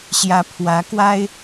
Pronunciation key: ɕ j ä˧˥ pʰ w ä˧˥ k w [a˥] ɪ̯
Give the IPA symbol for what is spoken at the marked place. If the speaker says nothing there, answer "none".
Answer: a˥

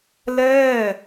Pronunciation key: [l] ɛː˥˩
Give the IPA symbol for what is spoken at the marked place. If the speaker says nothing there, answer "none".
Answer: l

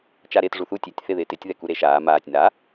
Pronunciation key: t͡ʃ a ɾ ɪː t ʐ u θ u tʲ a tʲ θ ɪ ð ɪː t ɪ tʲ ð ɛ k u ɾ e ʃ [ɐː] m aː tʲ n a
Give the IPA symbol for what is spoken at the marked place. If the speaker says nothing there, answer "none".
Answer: aː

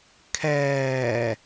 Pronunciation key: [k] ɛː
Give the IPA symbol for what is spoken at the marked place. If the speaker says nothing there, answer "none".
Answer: kʰ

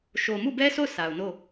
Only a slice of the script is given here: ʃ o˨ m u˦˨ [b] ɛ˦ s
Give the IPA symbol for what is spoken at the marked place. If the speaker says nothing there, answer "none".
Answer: b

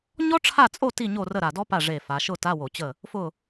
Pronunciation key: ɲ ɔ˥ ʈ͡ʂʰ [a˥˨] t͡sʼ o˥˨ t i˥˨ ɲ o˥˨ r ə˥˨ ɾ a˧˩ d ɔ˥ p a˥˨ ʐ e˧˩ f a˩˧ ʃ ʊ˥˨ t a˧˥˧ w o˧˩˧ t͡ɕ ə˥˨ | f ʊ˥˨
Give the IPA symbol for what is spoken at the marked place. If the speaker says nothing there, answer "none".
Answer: a˥˨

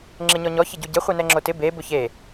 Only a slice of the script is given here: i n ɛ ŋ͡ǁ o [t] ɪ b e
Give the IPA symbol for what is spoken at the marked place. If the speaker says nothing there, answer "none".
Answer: t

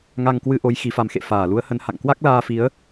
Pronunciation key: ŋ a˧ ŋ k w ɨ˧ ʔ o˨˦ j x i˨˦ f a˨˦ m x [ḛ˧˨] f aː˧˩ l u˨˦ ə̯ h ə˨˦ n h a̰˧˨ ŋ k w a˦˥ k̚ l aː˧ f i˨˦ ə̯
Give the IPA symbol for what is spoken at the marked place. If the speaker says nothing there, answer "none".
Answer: ḛ˧˨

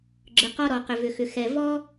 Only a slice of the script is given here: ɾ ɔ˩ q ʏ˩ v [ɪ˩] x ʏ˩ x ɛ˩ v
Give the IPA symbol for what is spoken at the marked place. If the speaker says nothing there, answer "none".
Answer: ʏ˩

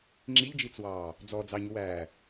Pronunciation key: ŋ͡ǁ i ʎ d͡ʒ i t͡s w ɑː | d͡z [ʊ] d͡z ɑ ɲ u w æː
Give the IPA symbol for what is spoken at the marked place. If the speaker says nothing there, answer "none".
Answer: ɔ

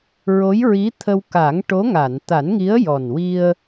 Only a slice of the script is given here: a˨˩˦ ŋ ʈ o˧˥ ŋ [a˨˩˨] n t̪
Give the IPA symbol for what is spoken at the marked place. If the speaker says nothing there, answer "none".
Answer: a˨˩˨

